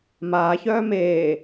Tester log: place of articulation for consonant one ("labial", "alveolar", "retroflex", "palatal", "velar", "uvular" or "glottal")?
labial